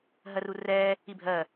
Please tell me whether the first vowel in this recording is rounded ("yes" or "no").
no